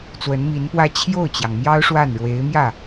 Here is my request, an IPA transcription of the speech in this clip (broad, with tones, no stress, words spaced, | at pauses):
t͡swə˧˥nmi˧˥npwä˥˧ t͡ɕʰjo˥˩ʊ̯t͡ɕjɑ˩ŋmjɑ˥ʊ̯ ʂwa˥˩n ɻwe˧˥ɪ̯mjä˥˩